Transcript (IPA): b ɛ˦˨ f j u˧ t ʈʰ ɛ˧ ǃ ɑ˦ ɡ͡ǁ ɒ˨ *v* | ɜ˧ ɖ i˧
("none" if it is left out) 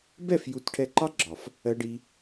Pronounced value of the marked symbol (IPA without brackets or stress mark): f